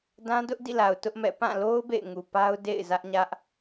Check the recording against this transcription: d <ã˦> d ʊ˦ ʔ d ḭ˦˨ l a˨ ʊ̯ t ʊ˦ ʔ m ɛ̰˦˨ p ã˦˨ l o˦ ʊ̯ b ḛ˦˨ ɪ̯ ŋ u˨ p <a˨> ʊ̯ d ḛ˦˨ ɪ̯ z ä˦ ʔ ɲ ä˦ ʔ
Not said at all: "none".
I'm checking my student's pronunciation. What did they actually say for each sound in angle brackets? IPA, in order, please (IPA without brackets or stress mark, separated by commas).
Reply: ã˦, a˦